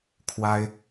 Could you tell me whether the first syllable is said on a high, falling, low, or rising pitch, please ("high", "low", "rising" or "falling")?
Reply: high